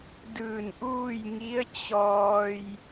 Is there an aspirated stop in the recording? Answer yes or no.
no